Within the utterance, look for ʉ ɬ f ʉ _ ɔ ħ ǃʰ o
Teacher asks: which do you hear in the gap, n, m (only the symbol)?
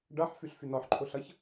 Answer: n